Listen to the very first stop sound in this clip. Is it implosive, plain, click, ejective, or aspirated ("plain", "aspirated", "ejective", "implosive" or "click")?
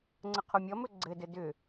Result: click